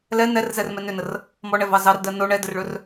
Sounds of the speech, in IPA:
l ɛ n ɛ r z ɛ r m ɛ n ʏ n ə r | m ɔ ɳ ɛ v ɑ z ɑ r d ɜ n o ɳ ɛ d ə r ɭ ɵ r

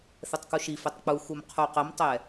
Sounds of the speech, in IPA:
θ ɛ tˤ k u ʃ i f ɛ tˤ k͡p u x u m qʰ u q ə m tˤ ɛ

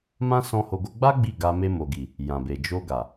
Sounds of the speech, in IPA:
m ã˦ s ɔ̃˧ h o˧ ɡ o˦ ɡ͡b a˦ ɡ͡b i˦˨ ɡ a˧ m e˧ m o˨ ɡ i˨ | j ã˨ b e˨ d͡ʒ o˧ ɡ a˨

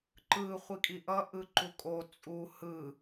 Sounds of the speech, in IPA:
ǃ ɯ χʷ i kʼ i ʔ ʌ ʔ ɯ ǃ u kʼ o t͡sʼ u h ɯ

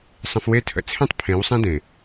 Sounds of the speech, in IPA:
sˤ ə̃˧ f w e˦ tʰ ə̰˧ t͡sʰ ẽ˦ tˤ pʰ ẽ˨˦ w sˤ ẽ˦ d ẽ˨

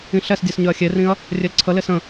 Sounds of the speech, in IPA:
ĩ ɬ ɛ s dʲ ɛ s ɲ ʏ ɐ̯ xʲ e r ĩ ɐ̯ | rʲ e l ǀʰ ə l e s ə̃

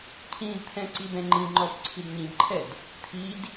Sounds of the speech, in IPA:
cʰ ĩ d t̪ʰ ɛ̃ ǀ i b ɛ̃ ŋ͡ǃ ĩ ŋ͡ǃ ɔ b ǀʰ i d ɲ ĩ b ǃʰ ɛ d | t̪ʰ i d

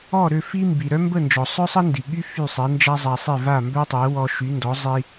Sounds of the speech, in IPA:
ɔ˥˩ ɾ ø˥˩ f i˥ m b i˩ ɾ œ˥ m b ə˥˩ n d͡ʒ ɔ˩ sˤ œ˥ sˤ ə˥ n d i˩ ɠ y˥ f y˥˩ sˤ ɛ˩˥ n d͡ʒ a˥ zˤ a˧ sˤ e˥˩ v a˥˩ m b œ˥ tˤ ɛ˩˥ w ɔ˧ ʃ y˩˥ n d ɔ˩˥ zˤ i˧

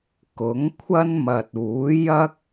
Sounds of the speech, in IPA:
k ʊ˨˥ ŋ kʷʰ ɐ˥ n m ɐ˨ t̚ uː˨˥ j ɐ˥ k̚

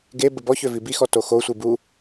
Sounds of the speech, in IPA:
ɡ e b ə b ɔ ç ø v i b i x ɔ t o x o sʷ i b u

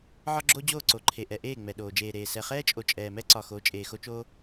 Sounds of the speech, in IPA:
ʕ ɒ˦ ɡ͡ǁ o˦ d͡ʑ oː˦˨ ǀ o˨ ǃʰ e˨ ʔ ɛ˨ ʔ eː˦˨ ŋ͡m ɛ˨ ɗ oː˨ d͡ʒ eː˨ ɾ eː˨ s ɛ˨ χ ɛː˦ t͡ʃʼ o˨ t͡ʃʼ ɛː˨ m ɛ˦ ǀ ɒ˨ x o˨˦ t͡ʃʼ eː˨ x o˦ t͡ʃ oː˦

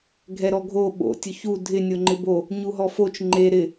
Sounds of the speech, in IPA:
ɡʱ ɛ ɾ ɔ ɡʱ o ɓ o̰ tʲ ʊ ç u dʱ ɪ nʲ o ŋ͡ǃ ɪ b o | ɲ u ɦ ɔ f o t͡ʃ ŋ͡ǃ e ɾ ɪ

